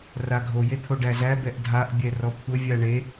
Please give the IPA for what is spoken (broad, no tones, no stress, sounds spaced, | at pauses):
r a ɡʱ o j e t̪ʰ o ɖ æ z æ b ɛ ʔ dʱ a ʔ bʲ ɛ r ɔ kʷʰ ə vʲ a ɳ e